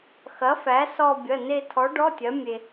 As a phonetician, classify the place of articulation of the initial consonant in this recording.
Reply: velar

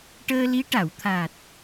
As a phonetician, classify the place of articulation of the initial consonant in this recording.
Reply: retroflex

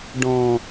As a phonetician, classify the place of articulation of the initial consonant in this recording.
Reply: retroflex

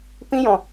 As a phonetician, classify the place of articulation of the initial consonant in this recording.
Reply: labial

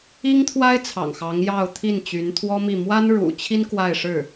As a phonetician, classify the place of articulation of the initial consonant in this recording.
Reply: velar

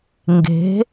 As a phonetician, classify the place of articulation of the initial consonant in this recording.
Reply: velar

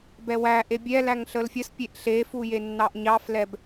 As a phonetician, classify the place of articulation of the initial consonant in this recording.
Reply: labial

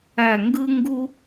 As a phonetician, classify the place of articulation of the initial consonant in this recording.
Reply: velar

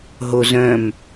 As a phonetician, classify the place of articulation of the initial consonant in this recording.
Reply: glottal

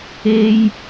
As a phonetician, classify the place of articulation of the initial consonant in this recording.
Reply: palatal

